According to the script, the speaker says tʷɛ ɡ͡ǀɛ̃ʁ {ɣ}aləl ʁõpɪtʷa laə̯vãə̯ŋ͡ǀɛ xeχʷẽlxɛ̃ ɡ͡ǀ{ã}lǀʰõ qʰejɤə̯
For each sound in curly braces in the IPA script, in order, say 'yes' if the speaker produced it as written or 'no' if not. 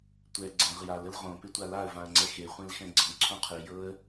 no, no

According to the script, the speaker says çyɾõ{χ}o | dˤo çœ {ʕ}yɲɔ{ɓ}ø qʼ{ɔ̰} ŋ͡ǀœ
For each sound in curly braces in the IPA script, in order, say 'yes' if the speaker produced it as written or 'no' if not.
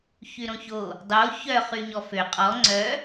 no, no, no, no

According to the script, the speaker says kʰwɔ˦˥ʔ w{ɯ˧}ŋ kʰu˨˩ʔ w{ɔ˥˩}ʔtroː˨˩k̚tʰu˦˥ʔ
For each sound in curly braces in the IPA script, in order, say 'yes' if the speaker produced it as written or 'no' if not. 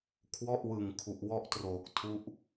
no, no

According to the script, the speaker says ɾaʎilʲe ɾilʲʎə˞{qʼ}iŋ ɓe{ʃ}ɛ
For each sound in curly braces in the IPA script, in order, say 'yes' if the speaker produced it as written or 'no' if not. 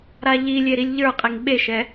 yes, yes

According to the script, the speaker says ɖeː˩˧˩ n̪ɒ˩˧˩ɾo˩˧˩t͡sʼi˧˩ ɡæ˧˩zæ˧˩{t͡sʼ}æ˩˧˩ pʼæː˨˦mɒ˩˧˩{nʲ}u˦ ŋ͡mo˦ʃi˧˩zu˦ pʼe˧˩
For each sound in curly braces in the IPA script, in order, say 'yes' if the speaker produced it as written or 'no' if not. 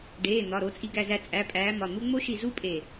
yes, no

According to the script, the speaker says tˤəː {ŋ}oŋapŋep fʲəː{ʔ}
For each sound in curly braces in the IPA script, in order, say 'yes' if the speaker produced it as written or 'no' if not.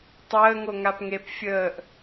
yes, yes

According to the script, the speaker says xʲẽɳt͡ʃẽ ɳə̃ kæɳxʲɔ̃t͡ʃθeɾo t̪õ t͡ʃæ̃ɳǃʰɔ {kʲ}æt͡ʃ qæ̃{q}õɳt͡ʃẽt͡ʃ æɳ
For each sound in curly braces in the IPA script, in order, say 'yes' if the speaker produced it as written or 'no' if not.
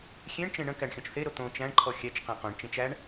no, yes

